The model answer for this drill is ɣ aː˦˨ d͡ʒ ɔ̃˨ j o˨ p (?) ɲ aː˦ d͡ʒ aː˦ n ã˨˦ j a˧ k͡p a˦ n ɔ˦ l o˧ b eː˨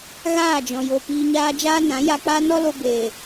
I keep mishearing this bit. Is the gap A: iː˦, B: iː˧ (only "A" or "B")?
B